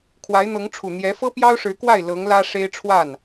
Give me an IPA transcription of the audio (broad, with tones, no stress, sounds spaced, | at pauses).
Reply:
kʰ w a˧˥ ɪ̯ n̪ ɤ˧˥ ŋ ʈ͡ʂʰ u˨˩ n̪ j ɛ˧˥ f ɤ˥ p j ɑ˥ ʊ̯ ʂ ɻ̩˧˥ k w a˥˩ ɪ̯ l ɤ˧˥ ŋ l ä˥ ʂ e˥ ɪ̯ ʈ͡ʂʰ w a˥˩ n